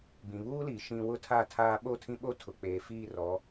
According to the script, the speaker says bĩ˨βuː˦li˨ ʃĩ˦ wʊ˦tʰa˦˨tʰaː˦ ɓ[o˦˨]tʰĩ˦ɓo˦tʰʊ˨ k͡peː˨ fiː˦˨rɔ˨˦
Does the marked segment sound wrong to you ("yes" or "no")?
no